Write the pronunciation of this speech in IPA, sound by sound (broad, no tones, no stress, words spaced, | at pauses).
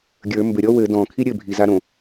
ɡʲə˞ mbɘɾʲɔ wɘ dɔ̃kʰi ɾʲɘbʱiza ɾõ